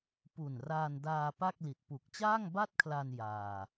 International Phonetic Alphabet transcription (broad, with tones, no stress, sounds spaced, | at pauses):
p u˨˩ n r aː˧ n d aː˧ p a˥˩ k̚ l i˨˩ t̚ p u˨˩ k̚ t͡ɕ aː˥˩ ŋ b a˥˩ t̚ kʰ l a˧ n j aː˧